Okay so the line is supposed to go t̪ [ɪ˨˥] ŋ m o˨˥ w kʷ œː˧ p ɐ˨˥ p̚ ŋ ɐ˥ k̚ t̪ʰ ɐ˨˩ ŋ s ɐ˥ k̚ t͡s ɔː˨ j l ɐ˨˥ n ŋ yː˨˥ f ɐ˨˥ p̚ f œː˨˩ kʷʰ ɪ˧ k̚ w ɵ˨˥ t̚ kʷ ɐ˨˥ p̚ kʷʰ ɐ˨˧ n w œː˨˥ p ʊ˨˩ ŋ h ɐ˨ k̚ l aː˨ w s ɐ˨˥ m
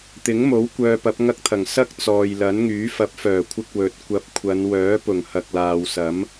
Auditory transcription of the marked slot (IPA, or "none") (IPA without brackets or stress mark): ɪ˨˥